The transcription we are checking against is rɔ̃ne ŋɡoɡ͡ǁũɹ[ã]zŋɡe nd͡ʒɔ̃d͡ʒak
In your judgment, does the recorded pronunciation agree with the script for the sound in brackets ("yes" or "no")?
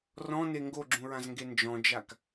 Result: yes